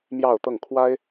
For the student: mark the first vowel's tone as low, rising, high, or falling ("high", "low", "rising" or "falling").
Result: falling